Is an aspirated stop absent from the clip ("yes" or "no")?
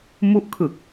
no